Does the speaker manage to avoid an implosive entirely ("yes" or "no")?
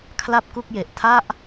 yes